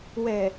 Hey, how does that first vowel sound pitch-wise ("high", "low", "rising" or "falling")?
low